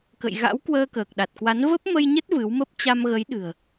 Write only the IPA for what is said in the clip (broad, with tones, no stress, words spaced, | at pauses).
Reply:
kə̰˧˨jɣa̰˧˥w kwəː˧kəː˨˩k̚ɗa˨˩t̚kwa˨˦n və˦˥p̚mə˧jɲə˦˥t̚ vɨ˨˦wmə˦˥p̚ t͡ɕa˧mɣə˨˦jɗɨ̤˨˩ə̯